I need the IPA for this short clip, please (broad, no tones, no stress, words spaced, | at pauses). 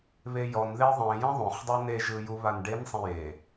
βejɔnðe ðˤẽ jɛ̃ðˤõχdˤu neʒɯ juβanɖensˤẽ je